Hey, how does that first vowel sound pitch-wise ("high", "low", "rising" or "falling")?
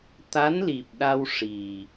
rising